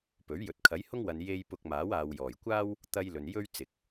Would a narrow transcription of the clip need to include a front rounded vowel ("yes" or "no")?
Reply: no